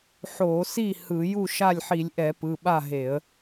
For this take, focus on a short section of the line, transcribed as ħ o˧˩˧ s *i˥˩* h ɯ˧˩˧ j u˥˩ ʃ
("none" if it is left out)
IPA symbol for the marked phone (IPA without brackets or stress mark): i˥˩